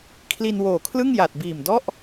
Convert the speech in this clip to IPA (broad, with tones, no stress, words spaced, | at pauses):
kʰli˧nwoː˨˩kʰlɯ˥˩ŋ ja˨˩t̚biː˨˩mdɔ˥˩ʔ